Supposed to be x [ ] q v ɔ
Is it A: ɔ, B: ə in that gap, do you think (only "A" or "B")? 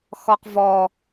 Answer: A